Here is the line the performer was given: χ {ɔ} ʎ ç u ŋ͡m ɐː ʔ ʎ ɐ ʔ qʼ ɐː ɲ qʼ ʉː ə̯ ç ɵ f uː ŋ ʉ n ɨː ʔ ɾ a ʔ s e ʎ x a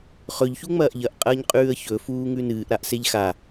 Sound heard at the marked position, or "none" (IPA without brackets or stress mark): ɵ